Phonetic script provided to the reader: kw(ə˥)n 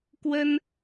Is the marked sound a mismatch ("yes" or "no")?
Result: no